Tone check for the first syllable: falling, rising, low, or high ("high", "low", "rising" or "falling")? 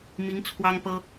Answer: rising